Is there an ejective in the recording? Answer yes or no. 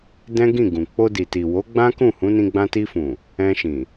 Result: no